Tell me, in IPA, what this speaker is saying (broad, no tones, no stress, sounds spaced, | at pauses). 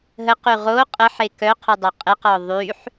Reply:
ɦ ə q y ʁ o qʼ ə ħ e k œ qʰ u dˤ œ qʼ e q ɔ ðˤ y ħ